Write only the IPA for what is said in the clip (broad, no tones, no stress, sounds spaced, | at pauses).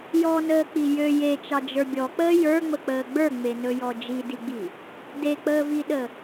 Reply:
j ɔ n əː k͡p i j ø j e t͡ʃ ɑ d͡ʒ ə˞ bʲ ɔ k͡p əː j ə˞ ŋ͡m ə k͡p əː ɡ͡b ə˞ ŋ͡m e n ɵ j ɔ d͡ʒ i d i ɡ͡b i | d e k͡p əː v i ɗ ə